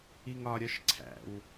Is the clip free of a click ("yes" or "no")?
no